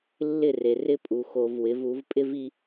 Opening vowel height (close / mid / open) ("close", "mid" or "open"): close